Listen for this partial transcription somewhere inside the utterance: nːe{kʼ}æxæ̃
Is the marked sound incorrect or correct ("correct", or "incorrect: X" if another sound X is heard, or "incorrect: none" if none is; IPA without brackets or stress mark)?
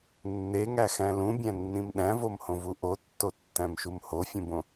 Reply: incorrect: ŋ